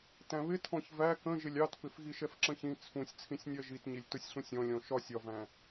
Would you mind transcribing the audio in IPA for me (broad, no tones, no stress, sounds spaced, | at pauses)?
t æ̃ β ɪ tʰ ɔ̃ ç v æ k ə̃ ʒ ɪ lʲ ɑ t p ɪ f ɣ i ʃ ɛ f ǁ ə̃ ç ĩ t͡sʰ ũ sʲ t͡sʰ ĩ sʲ nʲ ɜ ʒ i t ɲ i lʲ t ʊ sʲ ɬ ũ sʲ ɔ̃ lʲ ɔ̃ ʃ ɒ sʲ ɒ v æ̃